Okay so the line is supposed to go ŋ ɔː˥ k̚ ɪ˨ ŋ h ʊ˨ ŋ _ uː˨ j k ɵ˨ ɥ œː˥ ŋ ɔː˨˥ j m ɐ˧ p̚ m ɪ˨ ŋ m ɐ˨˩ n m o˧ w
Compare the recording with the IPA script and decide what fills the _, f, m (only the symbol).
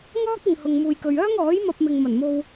m